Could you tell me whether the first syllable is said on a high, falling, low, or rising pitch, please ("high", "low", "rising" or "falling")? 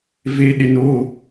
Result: low